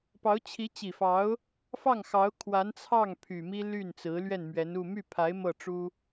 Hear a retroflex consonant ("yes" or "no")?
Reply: yes